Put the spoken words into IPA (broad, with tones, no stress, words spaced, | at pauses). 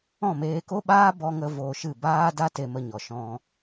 ɔ̃˦˨meː˧ko˦ɓaː˦ bɔ˧ŋə˧ voː˧ʃɨ˦˨ baː˦da˦ te˧mə˧ɲɔ˨ ʃɔ̃˧